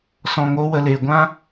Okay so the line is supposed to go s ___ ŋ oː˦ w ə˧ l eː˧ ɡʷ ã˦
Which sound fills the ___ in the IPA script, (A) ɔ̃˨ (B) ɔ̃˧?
B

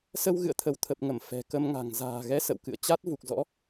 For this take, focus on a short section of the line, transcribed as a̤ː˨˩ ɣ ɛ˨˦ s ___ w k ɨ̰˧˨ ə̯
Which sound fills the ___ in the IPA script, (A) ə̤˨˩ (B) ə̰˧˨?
B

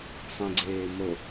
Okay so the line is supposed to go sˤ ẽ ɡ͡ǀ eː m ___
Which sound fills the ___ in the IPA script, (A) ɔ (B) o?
B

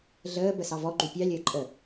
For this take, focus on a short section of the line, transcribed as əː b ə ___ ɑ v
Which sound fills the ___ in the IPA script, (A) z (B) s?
B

